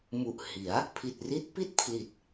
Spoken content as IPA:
m u˨˩ ʔ h i˩˦ a̯ | pʰ i˨˩ t̚ r i˦˥ t̚ p i˥˩ t̚ pʰ l i˨˩ t̚

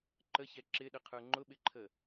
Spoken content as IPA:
ǃ ə ç ɛ ǁ ɪ ɗ ə qʰ ə˞ ŋ͡ǃ ʊ ɓ ɪ ǃʰ ə

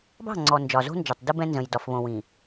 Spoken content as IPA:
b ɑ̤˦˨ ŋ͡ǀ ɔ˨ n d͡ʒ ɒ˨ z o̤˦ n d͡ʒ ɒ˨ tˤ d ɯ˦ b ɛ̃˦ n z ə̃˨ j d ɒ˨ f β õ˨ w ĩ˨

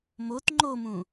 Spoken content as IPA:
m o t ŋ͡ǃ o m ũ

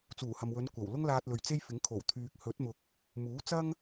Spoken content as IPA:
t͡s uː˨˩ h ɐ˨ m w ɵ˨˧ n kʷ ɐ˨˩ w l ʊ˥ ŋ l aː˧ t̚ l ɵ˨ ɥ t͡s e˥ j f ɪ˨˥ ŋ kʰ o˨˩ w t̪ʰ yː˨ k̚ h ɵ˨˥ t̚ m ʊ˨ k̚ | m uː˨˥ t͡s ɐ˥ ŋ

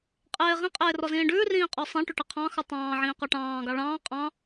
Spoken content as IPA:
qʼ eː ʁ ĩ qʼ eː r ɔ z ĩː ɖ ʉː r ĩː qʼ ɔ sˤ ẽ ʈ ʉ ʈ e qʰ ɑ̃ x ʉ tˤ ɑ̃ː ʕ ĩː q ɔ ʈ ɑ̃ː ɡ ɑ ɭ ɑ̃ː qʼ ɑ̃

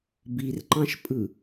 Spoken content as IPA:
b i r ǃ ɑ̃ ʃ pʼ ɯ

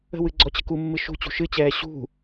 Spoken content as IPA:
ə̤ w ɨ ɡ͡ǀ ɔ t͡ɕ ə̤ k u mː ɨ ʃ ṳ t͡ɕ ṳ ʃ ɨ t͡ɕ ɛː ɕ ṳ

